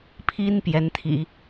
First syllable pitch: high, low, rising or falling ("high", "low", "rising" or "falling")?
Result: high